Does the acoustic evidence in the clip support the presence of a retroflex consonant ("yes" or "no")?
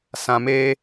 no